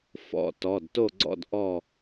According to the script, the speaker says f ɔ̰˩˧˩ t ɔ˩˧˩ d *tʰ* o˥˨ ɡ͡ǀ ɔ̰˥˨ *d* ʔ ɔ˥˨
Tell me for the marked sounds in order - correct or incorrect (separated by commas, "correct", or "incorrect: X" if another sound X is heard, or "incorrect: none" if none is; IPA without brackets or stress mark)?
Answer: incorrect: t, correct